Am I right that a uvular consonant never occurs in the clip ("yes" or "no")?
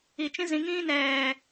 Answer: yes